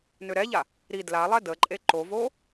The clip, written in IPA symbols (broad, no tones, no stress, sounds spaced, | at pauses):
n ø ɾ ɛ ʎ a | ɾ i d l a lˠ ɛ d ə ǃʼ e ǃ o v o